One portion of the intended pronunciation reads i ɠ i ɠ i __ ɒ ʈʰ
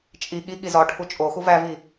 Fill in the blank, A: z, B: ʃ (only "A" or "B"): A